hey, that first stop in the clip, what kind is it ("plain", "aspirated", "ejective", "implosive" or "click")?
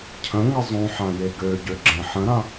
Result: aspirated